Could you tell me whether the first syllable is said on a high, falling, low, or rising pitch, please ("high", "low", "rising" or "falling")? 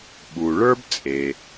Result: low